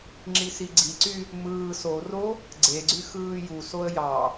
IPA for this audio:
ŋ͡ǁ i s i ɡ͡ǀ i ǀ y | m ɯː s o r o | ɡ͡ǀ e ɡ͡ǀ y x ɯː j u s o ə̯ j ɑ

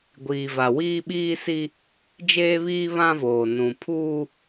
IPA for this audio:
ɡʷ iː˨ v a˨ w iː˦ ɓ iː˦ s i˦ | d͡ʒ eː˦ β iː˦ β ã˦ v oː˨ n ũ˨ pʰ uː˦

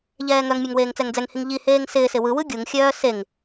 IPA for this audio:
ʎ ɛː ŋ œ ŋ mʲ ɔ ŋ w eː ŋ t͡s ɛ ŋ d͡z ɛ ŋ h i ŋ ʎ i h eː ŋ s ɪː s ɪ w ɯ w ɯ ɡʲ u ŋ xʲ œː s e ŋ

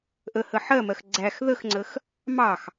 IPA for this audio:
ʔ ə h ə ħ ɜ m ɜ x ɡ͡ǀ æ x ð ə x ŋ͡ǀ ə x | m ɑ x

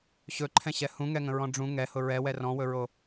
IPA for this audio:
ɕ ɵ ǃʰ ɛ̃ ɕ ɛ h ũ ŋ ɛ ŋ ə̃ ɹ ɔ̃ ɖ͡ʐ ũ ŋ ɛ h ʊ ɹ ɛ w ɛ r ɔ̃ w ɵ ɹ o

